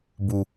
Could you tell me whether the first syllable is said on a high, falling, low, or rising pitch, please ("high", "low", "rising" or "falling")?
low